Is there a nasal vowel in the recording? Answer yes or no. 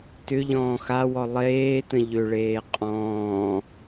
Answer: yes